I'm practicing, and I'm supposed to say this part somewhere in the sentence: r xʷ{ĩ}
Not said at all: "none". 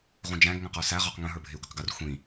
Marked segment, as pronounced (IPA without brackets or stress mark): ĩ